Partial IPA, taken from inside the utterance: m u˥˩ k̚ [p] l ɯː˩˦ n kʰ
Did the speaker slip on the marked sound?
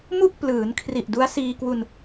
no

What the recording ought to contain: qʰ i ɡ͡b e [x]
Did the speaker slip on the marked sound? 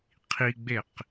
yes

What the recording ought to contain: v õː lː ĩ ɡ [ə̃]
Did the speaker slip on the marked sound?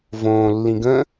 no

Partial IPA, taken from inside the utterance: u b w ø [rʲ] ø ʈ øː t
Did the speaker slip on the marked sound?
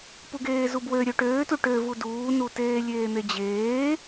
yes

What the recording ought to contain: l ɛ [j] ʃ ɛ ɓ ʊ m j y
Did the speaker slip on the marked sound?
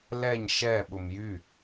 yes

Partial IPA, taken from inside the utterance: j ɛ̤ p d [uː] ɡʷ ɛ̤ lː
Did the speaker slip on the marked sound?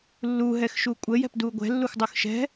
no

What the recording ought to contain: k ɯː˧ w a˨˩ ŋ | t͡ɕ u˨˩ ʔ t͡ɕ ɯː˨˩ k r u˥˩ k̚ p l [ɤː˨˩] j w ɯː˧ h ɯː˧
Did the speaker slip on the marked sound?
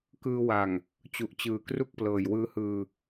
no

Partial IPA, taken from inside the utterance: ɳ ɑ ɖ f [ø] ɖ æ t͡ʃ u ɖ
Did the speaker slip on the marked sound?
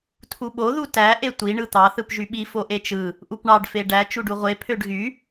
yes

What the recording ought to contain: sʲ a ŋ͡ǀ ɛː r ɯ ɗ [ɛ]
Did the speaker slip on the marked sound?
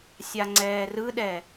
no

